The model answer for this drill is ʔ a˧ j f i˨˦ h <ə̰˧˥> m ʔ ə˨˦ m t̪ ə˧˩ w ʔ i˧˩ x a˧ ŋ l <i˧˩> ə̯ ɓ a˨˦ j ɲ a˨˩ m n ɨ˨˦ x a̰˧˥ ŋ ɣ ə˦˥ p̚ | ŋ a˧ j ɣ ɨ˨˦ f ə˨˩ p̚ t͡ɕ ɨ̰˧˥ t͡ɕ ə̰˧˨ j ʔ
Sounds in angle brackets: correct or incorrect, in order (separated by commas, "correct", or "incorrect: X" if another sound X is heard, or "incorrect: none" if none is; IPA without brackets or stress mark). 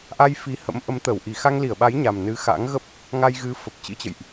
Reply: correct, correct